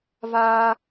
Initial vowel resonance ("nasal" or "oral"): oral